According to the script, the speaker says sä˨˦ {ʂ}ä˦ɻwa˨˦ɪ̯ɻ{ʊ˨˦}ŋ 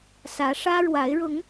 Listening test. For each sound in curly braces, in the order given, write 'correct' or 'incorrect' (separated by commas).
correct, correct